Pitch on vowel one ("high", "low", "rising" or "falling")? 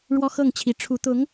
high